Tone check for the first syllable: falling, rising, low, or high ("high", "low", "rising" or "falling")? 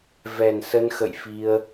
low